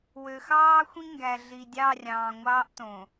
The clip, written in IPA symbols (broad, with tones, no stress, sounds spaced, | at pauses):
w ø˨ x ɑː˦ xʷ ĩ˦ ŋ ɡ æ˨ ɮ i˨ dʲ ɑ˦˨ rʲ ɑ̃ː˨ ŋʷ ɑː˦ ʔ t õ˨